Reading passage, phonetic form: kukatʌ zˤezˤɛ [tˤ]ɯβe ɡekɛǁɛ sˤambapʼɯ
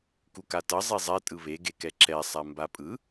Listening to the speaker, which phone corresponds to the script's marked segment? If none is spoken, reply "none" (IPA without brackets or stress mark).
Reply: tʼ